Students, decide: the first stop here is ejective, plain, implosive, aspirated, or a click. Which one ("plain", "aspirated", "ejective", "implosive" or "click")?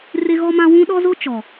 implosive